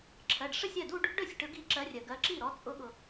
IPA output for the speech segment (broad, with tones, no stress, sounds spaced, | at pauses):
ǁʰ ɜ˩˧˩ ɖ ʂ ə˥˧ sʲ ɜ˥˩ d u˥˧ ɖ | ɖ ɵ˥˩ sʲ ʈ ɵ˨˦ ɡ i˨˦ ǁ ɜ˨˦ rʲ ɜ˩ ɡ ɜ˨˦ ǁ i˥˩ ɾ ɔ˨˦ t͡sʼ ʊ˨˦ ɠ ʊ˩